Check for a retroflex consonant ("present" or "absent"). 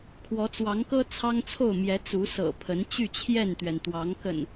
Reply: absent